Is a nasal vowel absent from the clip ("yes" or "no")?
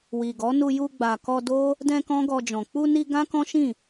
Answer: no